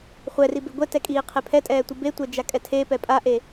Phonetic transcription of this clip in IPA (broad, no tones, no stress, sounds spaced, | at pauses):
χʷ ɛ r i b e ɡʷ ɛ t ɛ kʼ iː qʰ e pʰ ɛ tʼ ɛː tʷ ɯ b e tʷ ɛ d͡ʒ a kʼ ɛ tʰ e p ɛ pʼ a ʔ e